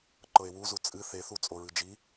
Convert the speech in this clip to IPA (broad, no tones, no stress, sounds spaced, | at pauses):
ǃ ɤ e̯ w u z u t͡sʼ ɨ θ e θ u t͡sʼ o ɹ ɨ d͡ʒ i